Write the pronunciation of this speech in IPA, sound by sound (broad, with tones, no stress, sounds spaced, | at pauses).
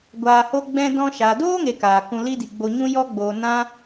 ɡʷ aː˧ h o˦ ɡ͡b ɛ̃˦ d ɔ̃˧ ʃ aː˨ d oː˦ ŋ e˨ k aː˨ k ũ˧ l i˦ d i˨ ɡ͡b o˧ ɲ ũ˦ j ɔ˦ ɡ͡b oː˨ n ã˦